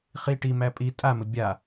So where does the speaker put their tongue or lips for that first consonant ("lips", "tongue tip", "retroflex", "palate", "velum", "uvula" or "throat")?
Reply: uvula